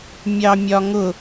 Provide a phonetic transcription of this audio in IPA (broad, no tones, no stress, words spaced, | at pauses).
mʲɑmʲɒŋʊ